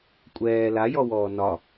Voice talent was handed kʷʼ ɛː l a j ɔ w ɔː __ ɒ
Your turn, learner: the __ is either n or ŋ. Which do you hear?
n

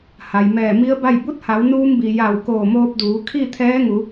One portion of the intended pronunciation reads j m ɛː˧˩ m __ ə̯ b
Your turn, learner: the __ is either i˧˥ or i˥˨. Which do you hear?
i˧˥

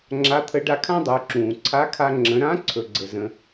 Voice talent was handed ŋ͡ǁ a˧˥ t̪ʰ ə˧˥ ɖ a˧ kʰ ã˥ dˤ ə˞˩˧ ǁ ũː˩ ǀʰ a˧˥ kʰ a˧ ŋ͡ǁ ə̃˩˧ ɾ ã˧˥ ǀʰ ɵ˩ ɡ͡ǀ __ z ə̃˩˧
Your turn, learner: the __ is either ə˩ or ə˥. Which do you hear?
ə˩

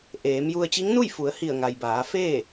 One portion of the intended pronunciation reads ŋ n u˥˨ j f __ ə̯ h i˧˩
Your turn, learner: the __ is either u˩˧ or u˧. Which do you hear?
u˩˧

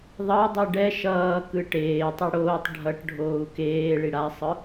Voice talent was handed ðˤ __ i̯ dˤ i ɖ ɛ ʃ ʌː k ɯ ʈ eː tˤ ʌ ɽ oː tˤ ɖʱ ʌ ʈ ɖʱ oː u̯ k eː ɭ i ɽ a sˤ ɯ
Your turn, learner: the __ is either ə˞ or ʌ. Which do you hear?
ʌ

